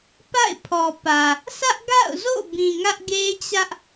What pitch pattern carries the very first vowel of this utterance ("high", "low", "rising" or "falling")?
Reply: falling